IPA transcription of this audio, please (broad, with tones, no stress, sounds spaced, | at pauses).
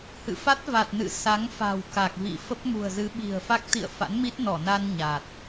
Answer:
h ɨ̰˧˨ f a˦˥ t̚ v a˨˩ t̚ n ɨ̰˧˨ s a˨˦ ŋ f a̤˨˩ w k a˨˩ k̚ v ḭ˧˨ f ə˦˥ p̚ m ṳ˨˩ ə̯ z ɨ˨˦ ɓ i̤˨˩ ə̯ f a˦˥ k̚ t̪ ḭ˧˨ ə̯ f a̰˧˥ n m i˦˥ t̚ n ɔ˧˩ n a˧ n ɲ a˨˩ t̚